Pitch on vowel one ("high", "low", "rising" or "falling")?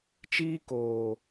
high